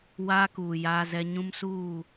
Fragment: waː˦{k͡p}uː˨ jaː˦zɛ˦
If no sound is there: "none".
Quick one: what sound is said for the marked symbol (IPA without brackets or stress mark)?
k